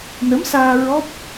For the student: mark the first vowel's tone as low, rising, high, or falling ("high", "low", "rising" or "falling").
rising